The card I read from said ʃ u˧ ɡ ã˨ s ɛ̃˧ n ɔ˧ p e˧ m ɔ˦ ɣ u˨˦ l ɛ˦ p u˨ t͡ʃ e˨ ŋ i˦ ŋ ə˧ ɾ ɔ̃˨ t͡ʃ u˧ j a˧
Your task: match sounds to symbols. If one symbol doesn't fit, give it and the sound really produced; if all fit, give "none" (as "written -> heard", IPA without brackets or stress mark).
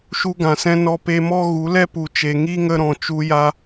none